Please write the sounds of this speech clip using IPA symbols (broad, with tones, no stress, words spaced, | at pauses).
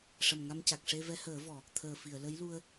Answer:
ʂə˨˩mŋa˧mca˨˩k̚ ʂe˧vɛ˧˥həː˨˩˦vɔ˨˩˨ | t̪ʰəː˨˩fi˨˩˨ə̯ lə˧˥jlu˧ə̯